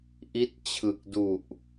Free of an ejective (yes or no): yes